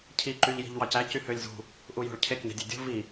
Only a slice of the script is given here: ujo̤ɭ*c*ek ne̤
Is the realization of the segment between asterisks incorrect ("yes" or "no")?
yes